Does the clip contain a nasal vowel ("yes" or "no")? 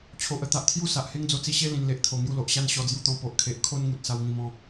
yes